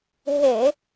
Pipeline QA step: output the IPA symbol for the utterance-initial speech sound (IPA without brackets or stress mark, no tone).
ɦ